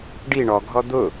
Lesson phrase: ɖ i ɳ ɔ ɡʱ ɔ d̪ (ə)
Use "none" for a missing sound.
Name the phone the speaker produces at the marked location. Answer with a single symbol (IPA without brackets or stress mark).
ʊ